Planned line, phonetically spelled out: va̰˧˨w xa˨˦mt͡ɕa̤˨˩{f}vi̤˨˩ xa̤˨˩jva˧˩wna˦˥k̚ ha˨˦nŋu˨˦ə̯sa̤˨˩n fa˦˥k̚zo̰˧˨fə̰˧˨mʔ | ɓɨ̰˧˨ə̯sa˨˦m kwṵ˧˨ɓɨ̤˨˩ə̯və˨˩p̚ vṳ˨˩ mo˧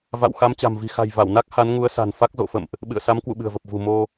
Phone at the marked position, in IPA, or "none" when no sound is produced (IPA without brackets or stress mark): m